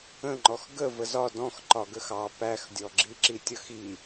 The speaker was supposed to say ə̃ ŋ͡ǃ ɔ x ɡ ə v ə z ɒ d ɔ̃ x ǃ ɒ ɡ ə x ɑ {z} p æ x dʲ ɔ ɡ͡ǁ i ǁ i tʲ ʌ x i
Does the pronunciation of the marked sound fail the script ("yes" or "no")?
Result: yes